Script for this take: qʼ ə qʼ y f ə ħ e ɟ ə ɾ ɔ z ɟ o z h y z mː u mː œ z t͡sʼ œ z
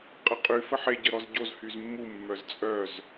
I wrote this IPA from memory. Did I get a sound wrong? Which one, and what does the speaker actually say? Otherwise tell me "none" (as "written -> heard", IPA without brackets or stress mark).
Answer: none